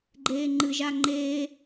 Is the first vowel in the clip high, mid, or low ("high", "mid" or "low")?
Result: mid